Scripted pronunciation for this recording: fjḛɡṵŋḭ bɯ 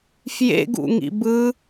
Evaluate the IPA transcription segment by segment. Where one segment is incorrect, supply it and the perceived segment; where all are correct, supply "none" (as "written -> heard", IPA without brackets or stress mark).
none